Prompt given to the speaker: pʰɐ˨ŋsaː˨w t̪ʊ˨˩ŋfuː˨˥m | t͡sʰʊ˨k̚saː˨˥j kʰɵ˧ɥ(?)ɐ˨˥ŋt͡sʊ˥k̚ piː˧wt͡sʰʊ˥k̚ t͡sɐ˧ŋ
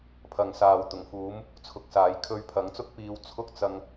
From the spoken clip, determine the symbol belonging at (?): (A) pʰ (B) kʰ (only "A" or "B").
A